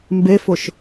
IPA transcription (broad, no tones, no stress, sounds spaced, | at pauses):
m b e f ʊ ʃ